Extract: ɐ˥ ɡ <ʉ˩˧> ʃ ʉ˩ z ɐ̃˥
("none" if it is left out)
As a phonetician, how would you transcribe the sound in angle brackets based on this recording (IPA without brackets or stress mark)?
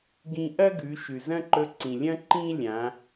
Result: ʉ˩˧